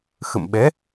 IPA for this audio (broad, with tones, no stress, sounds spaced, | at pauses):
x ə̰˧˨ m ɓ ɛ˨˦